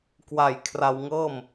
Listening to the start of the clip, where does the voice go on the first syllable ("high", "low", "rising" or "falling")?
low